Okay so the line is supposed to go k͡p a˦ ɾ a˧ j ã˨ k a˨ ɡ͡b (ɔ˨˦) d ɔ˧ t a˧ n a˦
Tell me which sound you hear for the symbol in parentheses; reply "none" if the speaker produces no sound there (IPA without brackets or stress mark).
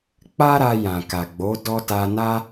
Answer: o˨˦